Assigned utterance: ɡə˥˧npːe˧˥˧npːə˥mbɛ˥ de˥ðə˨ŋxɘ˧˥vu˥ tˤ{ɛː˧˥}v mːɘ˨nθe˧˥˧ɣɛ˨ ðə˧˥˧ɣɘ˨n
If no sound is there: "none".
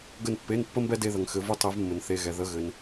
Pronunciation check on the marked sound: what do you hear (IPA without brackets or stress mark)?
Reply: ɛ˧˥